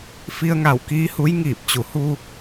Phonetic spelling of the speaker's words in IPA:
f i˧ ə̯ ŋ a˧˩ w k iː˧˥ h u˧˥ j ŋ iː˧˩ p̚ t͡ɕ u˩˧ h u˧

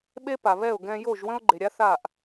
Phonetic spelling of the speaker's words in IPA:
ɓ e˦ p a˨ β ɛ˦˨ ʊ̯ ɡ ɛ̃˧ j o˦˨ ʒ w ə̃˦ ʊ̯ ɡ͡ǃ e˨ ɾʲ a˦ θ a˦˨ ʔ

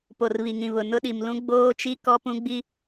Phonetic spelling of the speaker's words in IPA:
p o˨ r β i˨ ŋ ĩ˨ β ʊ˨ n ʊ˦ ɗ i˨ m l ũ˦ ɡ͡b oː˦ t͡ʃ i˦ k ɔ˦ p ũ˦ ɡ͡b i˦

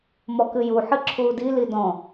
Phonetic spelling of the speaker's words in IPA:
m ɔ k ɨ j u ħ ɨ ǁʰ uː d i l i d ɔ̃

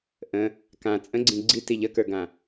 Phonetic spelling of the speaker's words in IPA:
ʔ ə̃ | k ã t͡sʼ ə̃ ɡ͡ǀ ĩ ɡ͡ǀ i t i ʎ ə k ə˞ ɡ ã

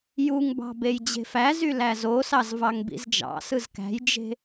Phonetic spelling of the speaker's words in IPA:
j u ŋ b ɑ̤ b e j d͡ʑ e̤ f æ z y l æ z o s ɑ z v ɑ ŋ b ḭ z d͡ʒ ɑ̰ s ɯ z k æ̤ j d͡ʒ e̤

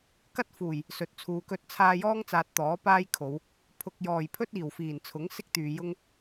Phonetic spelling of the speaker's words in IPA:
k ɐ˥ t̚ f uː˨˩ j | s ɵ˨ t̚ t͡sʰ uː˨ k ɵ˥ t̚ t͡sʰ aː˧ j ɔː˥ ŋ t͡s aː˨ t̚ t̪ ɔː˨˥ p aː˥ j kʰ o˨˧ w | pʰ ʊ˨ k̚ j ɔː˨˩ j pʰ ɵ˥ t̚ iː˨˩ w f iː˨˩ n t͡sʰ ʊ˨˥ ŋ s ɪ˥ k̚ t̪ yː˨ j ʊ˥ ŋ

